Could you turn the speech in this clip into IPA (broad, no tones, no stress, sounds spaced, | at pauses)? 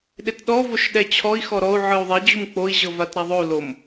ɗ e t ɗ ɔ v o ʃ ɗ ɛ t͡ɕʰ ɔ i̯ x ɔ ɾ ɔ u̯ ʕ ɯ u̯ ðˤ ɛ d͡ʑ u m k͡p o i̯ ʑ ɤ v a t ɾ a ðˤ o u̯ l o m